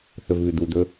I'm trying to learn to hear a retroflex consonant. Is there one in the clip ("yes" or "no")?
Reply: no